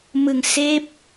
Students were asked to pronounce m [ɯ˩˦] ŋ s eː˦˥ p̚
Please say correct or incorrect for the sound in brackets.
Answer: incorrect